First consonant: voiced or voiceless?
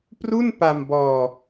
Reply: voiceless